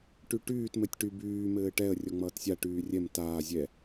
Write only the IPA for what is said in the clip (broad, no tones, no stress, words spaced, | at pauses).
ʈyʈyːt mɘtʲʈy byː mɘːʈɛə̯ rʲɔŋ͡mʌːtsʲa ʈyːrʲɛm taː zʲɛ